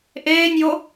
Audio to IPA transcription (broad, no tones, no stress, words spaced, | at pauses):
ʔeːnʲjo